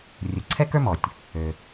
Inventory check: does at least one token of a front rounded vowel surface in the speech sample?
yes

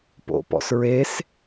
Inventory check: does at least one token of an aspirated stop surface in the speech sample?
no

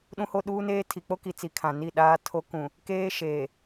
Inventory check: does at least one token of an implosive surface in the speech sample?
yes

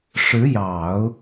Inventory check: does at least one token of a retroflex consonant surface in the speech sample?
yes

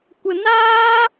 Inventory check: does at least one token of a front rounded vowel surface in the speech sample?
no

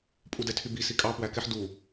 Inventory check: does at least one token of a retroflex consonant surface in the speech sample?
no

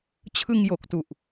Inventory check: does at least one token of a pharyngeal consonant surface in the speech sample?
no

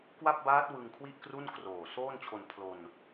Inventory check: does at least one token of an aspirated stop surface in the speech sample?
yes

